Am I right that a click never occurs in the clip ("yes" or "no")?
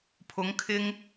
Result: yes